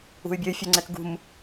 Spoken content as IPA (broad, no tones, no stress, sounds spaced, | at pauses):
ṳ y̯ bʲ ø y̯ fʲ œ ŋ͡ǀ ɛ k ɡ ṳ m